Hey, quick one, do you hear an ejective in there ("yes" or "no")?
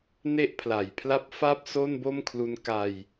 no